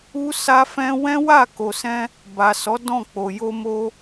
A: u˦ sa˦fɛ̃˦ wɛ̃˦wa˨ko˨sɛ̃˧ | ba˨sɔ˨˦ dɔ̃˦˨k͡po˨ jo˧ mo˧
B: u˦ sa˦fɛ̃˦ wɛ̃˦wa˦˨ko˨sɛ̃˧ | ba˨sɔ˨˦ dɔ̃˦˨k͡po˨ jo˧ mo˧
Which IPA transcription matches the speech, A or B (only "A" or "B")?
B